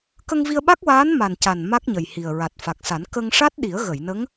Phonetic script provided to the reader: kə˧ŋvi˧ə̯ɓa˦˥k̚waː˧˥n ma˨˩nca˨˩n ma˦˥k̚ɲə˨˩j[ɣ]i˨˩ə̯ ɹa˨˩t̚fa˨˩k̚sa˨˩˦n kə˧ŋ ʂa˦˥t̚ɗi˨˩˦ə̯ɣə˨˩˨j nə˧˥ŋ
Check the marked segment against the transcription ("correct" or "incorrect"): incorrect